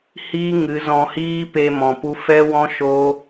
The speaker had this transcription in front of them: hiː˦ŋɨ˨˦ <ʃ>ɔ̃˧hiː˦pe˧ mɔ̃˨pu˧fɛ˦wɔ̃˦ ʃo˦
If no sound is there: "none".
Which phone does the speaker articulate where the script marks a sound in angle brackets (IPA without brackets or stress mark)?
z